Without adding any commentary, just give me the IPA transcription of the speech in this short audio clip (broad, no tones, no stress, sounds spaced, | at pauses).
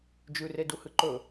d͡ʒ ʉ r e d u h ɨ ǃ ɵ